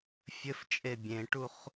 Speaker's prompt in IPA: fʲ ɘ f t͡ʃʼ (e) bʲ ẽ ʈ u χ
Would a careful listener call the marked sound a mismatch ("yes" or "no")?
no